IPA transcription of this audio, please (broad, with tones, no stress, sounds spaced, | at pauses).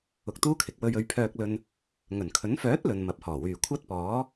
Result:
ʊ˧ k̚ t̪ uː˥ kʰ ɪ˨ k̚ w ɵ˧ ɥ ɵ˨˧ ɥ pʰ œː˧ k̚ l ɵ˧ n | ŋ ɵ˨˩ n kʰ ɵ˨˥ n f œː˨˥ t̚ l ɵ˨ n m ɐ˨˥ p̚ h ɔː˨˩ w yː˨˩ kʷʰ ɐ˥ t̚ p ɔː˨˥